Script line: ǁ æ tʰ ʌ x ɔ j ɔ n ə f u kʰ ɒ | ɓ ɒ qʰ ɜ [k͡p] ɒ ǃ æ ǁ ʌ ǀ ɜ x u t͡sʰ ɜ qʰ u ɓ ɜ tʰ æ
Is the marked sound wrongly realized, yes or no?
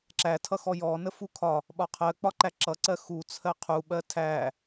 no